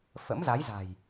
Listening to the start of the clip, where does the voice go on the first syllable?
rising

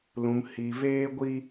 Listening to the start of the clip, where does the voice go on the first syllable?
low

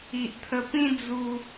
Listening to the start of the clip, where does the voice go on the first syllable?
low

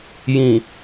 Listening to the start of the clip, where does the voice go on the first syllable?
low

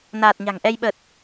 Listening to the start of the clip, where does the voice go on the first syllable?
low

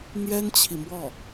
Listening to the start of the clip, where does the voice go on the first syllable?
high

